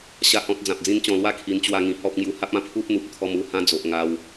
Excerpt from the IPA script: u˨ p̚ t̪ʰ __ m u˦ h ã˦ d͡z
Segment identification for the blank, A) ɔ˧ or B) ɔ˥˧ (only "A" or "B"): A